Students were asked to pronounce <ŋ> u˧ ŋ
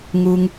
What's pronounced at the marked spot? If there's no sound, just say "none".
ŋ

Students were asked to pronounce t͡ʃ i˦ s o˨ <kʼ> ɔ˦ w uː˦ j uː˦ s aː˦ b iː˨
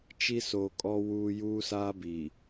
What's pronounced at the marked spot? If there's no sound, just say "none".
kʼ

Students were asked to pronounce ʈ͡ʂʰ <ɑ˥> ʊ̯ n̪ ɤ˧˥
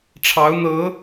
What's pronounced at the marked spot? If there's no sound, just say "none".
ɑ˧˥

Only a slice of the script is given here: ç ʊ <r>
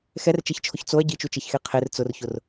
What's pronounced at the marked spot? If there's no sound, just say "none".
r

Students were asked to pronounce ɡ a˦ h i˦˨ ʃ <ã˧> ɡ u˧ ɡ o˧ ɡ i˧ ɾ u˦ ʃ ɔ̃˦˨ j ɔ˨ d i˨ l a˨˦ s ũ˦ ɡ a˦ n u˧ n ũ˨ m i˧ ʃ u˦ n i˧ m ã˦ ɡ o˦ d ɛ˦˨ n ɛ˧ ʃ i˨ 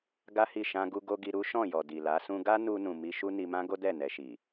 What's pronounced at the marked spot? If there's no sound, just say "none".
ã˧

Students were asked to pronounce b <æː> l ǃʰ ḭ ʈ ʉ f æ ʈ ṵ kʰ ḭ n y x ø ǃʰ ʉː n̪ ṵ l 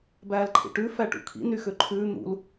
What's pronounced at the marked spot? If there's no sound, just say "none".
æː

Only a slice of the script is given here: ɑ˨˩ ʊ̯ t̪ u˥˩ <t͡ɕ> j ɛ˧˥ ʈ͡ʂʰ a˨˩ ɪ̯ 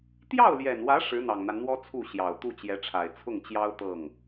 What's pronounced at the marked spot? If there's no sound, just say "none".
t͡ɕ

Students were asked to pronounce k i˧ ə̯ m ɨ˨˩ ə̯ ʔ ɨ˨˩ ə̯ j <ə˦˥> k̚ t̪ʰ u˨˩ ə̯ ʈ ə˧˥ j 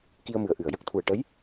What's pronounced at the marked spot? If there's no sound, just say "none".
ə˦˥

